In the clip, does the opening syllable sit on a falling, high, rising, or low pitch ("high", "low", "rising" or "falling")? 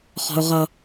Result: high